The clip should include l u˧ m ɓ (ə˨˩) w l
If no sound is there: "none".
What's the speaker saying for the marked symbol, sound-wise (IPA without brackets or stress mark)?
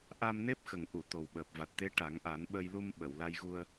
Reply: ə˨˩˨